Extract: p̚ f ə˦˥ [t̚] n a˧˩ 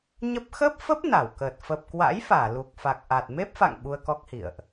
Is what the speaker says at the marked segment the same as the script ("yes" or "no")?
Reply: no